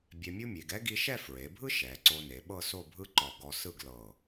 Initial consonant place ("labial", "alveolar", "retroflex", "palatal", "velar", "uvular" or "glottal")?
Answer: labial